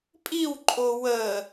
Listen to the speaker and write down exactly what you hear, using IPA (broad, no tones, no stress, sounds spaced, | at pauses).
pʼ i w ǃʼ o w ə